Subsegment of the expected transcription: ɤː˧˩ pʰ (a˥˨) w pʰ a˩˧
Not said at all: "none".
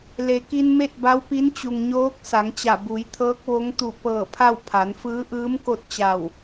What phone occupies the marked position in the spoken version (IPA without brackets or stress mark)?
a˥˨